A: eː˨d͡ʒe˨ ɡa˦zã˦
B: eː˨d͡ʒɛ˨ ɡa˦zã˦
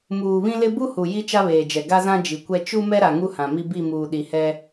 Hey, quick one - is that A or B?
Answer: B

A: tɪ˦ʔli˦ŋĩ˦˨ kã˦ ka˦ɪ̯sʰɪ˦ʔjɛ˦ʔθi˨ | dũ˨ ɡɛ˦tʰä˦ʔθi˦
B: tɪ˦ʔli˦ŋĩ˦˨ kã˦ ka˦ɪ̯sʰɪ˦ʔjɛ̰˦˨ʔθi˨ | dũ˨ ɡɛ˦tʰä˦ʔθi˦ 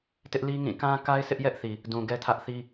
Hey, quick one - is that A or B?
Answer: A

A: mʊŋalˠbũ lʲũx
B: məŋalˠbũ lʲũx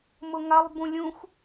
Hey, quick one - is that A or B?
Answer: A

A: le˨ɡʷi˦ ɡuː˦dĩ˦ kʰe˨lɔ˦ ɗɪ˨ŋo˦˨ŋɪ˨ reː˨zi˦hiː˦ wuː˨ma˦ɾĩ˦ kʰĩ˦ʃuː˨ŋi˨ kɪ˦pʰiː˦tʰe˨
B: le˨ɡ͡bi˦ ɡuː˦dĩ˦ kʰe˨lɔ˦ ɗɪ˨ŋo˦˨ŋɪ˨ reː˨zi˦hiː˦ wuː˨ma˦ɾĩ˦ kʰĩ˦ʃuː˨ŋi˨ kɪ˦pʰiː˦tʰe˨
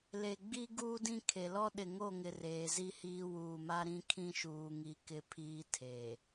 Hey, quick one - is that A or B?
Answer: B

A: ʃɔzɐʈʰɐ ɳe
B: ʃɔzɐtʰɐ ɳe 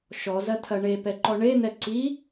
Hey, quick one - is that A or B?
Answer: B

